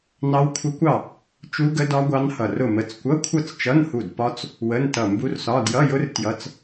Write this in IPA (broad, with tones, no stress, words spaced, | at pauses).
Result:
nɑ˦˥wkʷʰə˦˥kʷɑ˥˨ | t͡ʃu˦˥ɡə˦˥dɒ˦˥ ɡʷɑ˦˥nhʌ˧˩rʊ˥˨mə˧˥˧t͡s kʷʌ˧˥˧kʷʰʌ˥˨t͡st͡ʃʌ˧˥˧nhu˧˩d pɒ˦˥t͡s | wə˧˥˧ntʌ˧˩ mbu˦˥rsɒ˧˥˧ djʌ˧˥˧jʊ˦˥r tjʌ˧˥˧t͡s